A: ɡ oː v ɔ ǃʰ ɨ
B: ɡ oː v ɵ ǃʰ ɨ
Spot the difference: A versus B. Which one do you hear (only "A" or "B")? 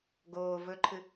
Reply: B